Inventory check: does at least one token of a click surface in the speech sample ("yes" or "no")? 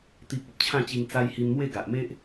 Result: no